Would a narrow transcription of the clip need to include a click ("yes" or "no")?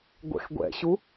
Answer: no